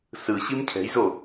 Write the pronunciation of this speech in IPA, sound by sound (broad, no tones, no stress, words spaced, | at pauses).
sɯ ɕimcʰɛ̤jzo